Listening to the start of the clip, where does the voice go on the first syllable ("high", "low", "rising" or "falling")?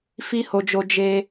high